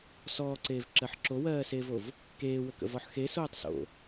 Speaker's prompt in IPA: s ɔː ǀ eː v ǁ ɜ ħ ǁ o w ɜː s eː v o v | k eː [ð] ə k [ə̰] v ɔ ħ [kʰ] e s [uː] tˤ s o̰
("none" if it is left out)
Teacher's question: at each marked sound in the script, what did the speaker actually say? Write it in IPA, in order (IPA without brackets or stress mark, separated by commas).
w, ə̰, x, oː